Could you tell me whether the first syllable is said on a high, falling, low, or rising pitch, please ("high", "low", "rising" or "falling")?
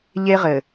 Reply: high